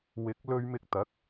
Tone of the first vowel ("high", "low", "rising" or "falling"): rising